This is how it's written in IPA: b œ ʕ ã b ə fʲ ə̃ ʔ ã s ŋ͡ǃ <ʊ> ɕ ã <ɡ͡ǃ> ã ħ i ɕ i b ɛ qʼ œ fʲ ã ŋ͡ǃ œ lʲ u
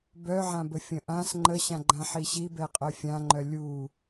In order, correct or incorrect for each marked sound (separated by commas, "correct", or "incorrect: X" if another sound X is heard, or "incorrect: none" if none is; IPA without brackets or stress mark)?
incorrect: ə, correct